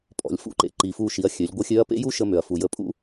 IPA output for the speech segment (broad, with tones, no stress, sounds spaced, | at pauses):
pʼ ɔ̰˩ lʲ f ṵ˧˥ ǃ ḛ˩ ǃ i˩ f u˧ ʃ i˩˧ ɐ̯ xʲ ø˩˧ lʲ ɡʷ ə˧˥ xʲ ø˧˥ ɐ̯ p ḛ˥ j u˥ ʃ ə˧ m ø˩ ɐ̯ f u˩ j ə˧ pʼ ṵ˥